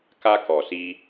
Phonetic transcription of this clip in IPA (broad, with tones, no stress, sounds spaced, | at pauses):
k a˧ k ɔ˨ s i˧